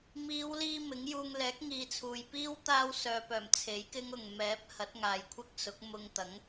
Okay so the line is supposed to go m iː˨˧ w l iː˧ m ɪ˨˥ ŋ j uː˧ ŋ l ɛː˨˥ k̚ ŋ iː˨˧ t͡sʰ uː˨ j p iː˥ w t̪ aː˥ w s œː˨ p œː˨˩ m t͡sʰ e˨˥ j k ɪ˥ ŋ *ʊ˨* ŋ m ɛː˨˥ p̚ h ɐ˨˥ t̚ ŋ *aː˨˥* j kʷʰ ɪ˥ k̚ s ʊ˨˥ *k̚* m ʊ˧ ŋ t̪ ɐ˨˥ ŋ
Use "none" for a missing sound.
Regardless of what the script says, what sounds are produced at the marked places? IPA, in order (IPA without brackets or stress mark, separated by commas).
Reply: ʊ˨, aː˨, k̚